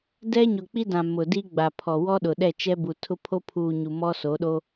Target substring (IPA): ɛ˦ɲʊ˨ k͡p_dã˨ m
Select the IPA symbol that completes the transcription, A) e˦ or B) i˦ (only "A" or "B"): B